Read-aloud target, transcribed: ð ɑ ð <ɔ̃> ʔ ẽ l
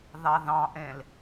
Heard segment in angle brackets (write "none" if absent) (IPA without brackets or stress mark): ɑ̃